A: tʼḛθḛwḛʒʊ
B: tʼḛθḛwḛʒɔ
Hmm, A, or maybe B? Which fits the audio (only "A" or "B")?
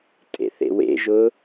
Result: A